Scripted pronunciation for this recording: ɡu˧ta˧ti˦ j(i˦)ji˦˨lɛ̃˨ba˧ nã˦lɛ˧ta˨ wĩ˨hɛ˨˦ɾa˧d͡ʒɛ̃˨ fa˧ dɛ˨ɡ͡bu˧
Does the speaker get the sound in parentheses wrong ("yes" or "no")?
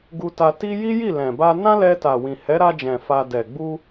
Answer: no